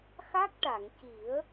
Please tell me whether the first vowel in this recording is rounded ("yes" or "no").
no